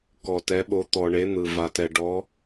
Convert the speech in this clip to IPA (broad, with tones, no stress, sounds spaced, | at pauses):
k ɔ˩ t ɛ˩˧ ɓ o˩˧ t̪ ɔ˩ ɳ e˩˧ n̪ ɯ˩ v a˩ t ɛ˩ ɖ ɔ˩˧